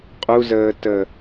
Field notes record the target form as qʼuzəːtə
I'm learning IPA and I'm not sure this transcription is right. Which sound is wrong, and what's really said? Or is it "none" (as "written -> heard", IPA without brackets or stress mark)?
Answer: none